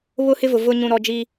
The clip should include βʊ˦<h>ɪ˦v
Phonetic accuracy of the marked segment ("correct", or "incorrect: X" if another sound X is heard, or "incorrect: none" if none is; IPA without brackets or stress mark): correct